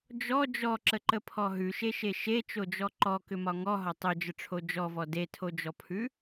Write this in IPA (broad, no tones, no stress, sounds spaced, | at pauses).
d͡ʒ ɔ d͡ʒ ɔ ǁ ə ǃ ə pʰ ɔ ɦ ʉ ʃ e ʃ e ʃ e t͡ʃ o d͡ʒ ɔ ǃ ɔ k ʏ m ɒ ŋ ɔ ɦ ɒ tˤ o d͡ʒ ə ʈ͡ʂʰ o d͡ʒ ɔ v ɔ d e tʰ o d͡ʒ ɔ pʰ ʉ